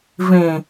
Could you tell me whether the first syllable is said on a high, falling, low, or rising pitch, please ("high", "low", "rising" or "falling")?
low